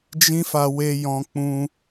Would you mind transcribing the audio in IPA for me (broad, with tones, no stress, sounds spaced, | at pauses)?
d͡ʒ ĩ˦ f a˧ w e˧ j ɔ̃˧ k͡p ũ˧